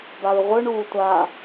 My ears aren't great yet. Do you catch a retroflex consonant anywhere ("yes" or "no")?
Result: yes